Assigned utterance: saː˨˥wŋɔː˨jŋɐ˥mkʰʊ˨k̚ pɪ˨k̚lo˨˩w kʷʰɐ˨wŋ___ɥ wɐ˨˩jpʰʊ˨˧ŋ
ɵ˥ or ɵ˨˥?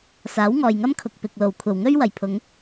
ɵ˥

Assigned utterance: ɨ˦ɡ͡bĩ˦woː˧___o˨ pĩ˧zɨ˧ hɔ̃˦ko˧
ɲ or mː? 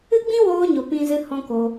ɲ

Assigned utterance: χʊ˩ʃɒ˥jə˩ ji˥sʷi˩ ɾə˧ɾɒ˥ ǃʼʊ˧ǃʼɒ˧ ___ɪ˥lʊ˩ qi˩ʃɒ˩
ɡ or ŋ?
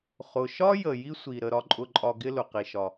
ɡ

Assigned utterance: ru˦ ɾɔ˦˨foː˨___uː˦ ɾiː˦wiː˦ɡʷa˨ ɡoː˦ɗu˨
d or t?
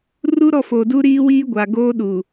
d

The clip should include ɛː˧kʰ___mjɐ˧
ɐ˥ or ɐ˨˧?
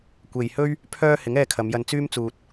ɐ˨˧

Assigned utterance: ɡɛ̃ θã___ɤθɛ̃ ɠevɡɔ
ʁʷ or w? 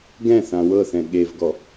w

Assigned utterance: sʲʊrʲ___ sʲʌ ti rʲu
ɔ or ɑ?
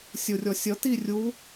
ɔ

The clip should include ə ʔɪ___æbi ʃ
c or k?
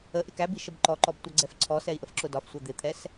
k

